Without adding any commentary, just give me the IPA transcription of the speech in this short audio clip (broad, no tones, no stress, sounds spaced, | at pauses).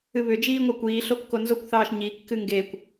ɨ β ʏ d͡ʒ iː ŋʷ e kʷ iː ɬ o kː o n z o kʷ θ ɑː ʃ ɲ i kː ɨ ŋ ɡ e kʷ